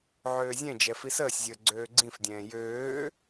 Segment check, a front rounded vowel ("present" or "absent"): present